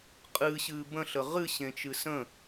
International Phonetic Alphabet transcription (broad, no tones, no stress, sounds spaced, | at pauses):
qʼ ɨː ɕ ɨː b ə̃ ɬ ə ʁ ɨ ɕ ẽ t͡ʃ ɨ s ə̃